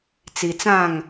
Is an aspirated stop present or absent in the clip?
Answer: absent